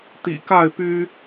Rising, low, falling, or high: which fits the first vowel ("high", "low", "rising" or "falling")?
low